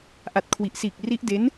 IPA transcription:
ʔa˨˩t̚kʰwi˨˩ʔsiː˨˩k̚ ri˦˥ʔde˦˥n

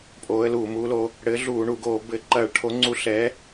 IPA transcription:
pʼoː˨˥ə̯luː˧˩˧mu˨˥loː˨˥ | ɽɘː˨˥ ɮuː˧˩˧ ɳu˧˩˧ɡoː˧˩˧ bɘ˧˩˧ ǃɐː˧˩˧ɭʈʰo˨˥ ŋ͡ǀu˨˥ ɬɛː˨˥

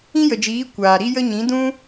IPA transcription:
ĩ˦jə˨d͡ʒiː˨˦ kʷaː˨ɾi˦ jə˦ ɲĩ˨˦dũ˦

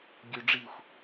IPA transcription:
ɡʲø ɖ͡ʐixʷ

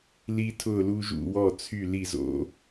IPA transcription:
li˦tʰʊ˥˨ lu˦ ʒṵ˥˨ wɔ˥˨ t͡sʰy˥˨li˥˨zo̰˦

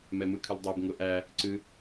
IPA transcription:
mɛmɯkʰɨldˤɛb ŋʊʔæ | ǀɨ

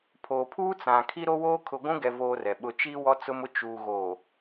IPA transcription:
pʰoː˨pʰuː˦t͡sã˨ kʰi˦ɾo˦woː˦ kʰʊ˨ɡʷũ˦ɡɛ˨voː˨ rɛ˨ɓʊ˦ t͡ʃiː˦wɔ˦t͡sʊ˦mʊ˦ t͡ʃuː˨ɣo˨

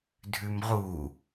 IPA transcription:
dʱʉmʁu

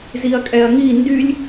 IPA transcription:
ziɐ̯kʼɛɐ̯ŋi ndylʲ

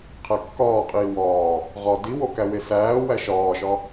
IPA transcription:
qʰækːɒːqʼiː wɒː | ʁɒ diwo kæwesæːwæ ʃɒːʃɒ

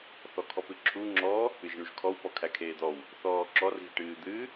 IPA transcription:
θɔkʰɔpɨǁʰu ŋ͡ǁɔ | ɨʒɳuʒkʰɔw pɔkʰækʰeːd̪ɔw | θɔːǁɔr ɣiʈɨːd̪ɨ

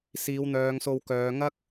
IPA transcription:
siː˨˧wn̪œː˨˧ŋso˧wkœː˨˧ ŋɐ˥k̚

